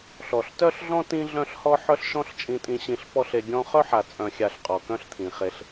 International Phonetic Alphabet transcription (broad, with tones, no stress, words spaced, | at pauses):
ɬɔ˨ɬtœ˦ɬɮɔ̃˦ tĩ˦ɮœ̃˦ɬhɔ˦ ħœ˦ɬʃɔ̃˦ɬt͡ʃʼĩ˧tʼĩ˧ ɕĩ˧ɬ pɔ˦ɬe˧ ɡʲɔ̃˦ χœ˦ħa˨t͡sʼœ̃˨xʲa˨ɬ qʼɔ˨kœ̃˦ɬt̪ʰĩ˨χe˧ɬ